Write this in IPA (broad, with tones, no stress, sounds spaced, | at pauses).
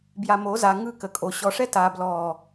b j a˨ m o˨˦ z a˨ ŋ ɯ˦˨ k ə˨ kʼ o˨ ɕ ɔ˨ ʂ ɛ˦ t a˨ b l ɔː˨